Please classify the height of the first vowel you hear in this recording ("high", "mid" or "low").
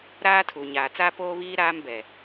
low